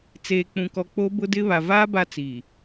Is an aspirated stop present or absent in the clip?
absent